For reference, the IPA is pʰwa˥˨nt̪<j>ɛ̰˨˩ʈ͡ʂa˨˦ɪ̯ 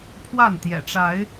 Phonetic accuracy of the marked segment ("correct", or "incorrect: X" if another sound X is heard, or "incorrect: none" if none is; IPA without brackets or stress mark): correct